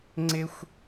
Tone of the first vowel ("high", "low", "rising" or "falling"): high